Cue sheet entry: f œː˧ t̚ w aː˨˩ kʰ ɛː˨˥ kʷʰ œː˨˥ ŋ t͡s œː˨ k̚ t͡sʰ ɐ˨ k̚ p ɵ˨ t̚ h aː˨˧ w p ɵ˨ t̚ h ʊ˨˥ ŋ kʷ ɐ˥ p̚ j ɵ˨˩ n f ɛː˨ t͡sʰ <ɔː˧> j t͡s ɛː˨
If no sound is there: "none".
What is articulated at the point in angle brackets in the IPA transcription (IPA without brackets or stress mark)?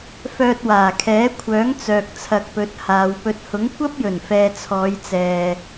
ɔː˨˧